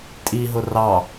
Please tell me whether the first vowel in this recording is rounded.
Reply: no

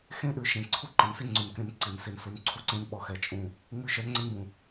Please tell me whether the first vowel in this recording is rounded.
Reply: no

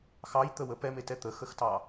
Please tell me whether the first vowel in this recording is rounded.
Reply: no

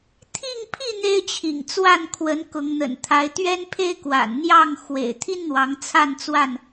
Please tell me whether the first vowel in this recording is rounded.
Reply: no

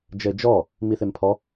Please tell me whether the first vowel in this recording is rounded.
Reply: no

